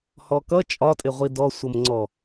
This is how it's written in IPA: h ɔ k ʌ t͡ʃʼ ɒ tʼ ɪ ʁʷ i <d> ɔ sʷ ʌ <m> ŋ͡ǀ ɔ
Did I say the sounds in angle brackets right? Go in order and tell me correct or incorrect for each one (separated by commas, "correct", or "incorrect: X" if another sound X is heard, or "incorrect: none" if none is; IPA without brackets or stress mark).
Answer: correct, correct